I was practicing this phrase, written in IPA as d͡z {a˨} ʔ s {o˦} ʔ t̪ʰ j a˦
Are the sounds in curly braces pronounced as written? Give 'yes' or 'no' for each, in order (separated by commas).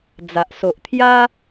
yes, no